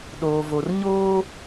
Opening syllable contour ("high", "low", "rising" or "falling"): low